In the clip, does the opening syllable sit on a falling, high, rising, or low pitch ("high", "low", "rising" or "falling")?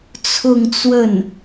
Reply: falling